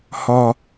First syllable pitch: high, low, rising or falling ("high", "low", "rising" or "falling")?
high